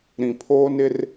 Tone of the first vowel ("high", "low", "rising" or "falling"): low